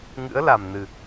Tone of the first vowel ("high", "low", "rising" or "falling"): rising